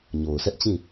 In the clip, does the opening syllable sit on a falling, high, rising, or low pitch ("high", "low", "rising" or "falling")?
low